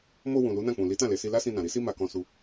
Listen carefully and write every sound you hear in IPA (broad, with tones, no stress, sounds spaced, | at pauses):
m o˧ w ũ˨ l u˨˦ n ã˦˨ k͡p ũ˨ l i˨˦ t ã˦˨ l e˨ s i˧ l a˦ s ĩ˧ n ã˨ ɾ i˨˦ s i˦ m a˧ k ɔ̃˧ s u˧